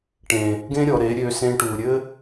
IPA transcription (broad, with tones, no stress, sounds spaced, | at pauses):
ʈ ẽ˨ | ɡ ẽ˦ ɾʲ ɔ˧ ɾ e˨˦ ɾʲ ø˧ s ẽ˧ ʈ u˨ ɾʲ ɘ˦